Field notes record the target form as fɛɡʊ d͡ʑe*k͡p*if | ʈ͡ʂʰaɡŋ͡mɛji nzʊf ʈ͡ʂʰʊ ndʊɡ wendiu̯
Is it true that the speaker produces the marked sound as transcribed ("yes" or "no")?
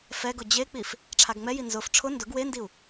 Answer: yes